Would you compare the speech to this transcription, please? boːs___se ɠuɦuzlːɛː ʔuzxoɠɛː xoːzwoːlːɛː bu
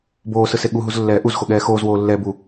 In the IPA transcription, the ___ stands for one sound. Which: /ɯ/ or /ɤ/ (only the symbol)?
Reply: ɯ